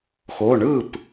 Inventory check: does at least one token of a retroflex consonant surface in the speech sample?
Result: yes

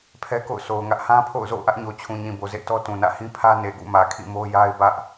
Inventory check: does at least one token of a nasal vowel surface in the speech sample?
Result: yes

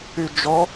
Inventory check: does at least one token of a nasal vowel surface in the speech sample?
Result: no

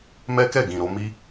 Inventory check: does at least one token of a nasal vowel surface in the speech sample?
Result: yes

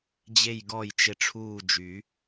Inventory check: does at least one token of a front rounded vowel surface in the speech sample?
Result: yes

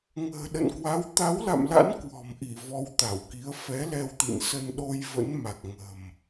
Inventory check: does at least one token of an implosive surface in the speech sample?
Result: yes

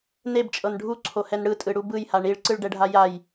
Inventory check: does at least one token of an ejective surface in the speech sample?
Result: yes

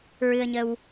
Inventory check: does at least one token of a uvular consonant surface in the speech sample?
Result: no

